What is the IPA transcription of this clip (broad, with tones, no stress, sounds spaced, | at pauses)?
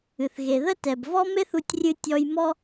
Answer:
ɨ˩ θ ɣ e˩ ð ə˥ t ɛ˩ b v ɔ˥ m e˥ θ u˧ tʲ rʲ ɨ˧ tʲ ɔ˧ j m ɔ˥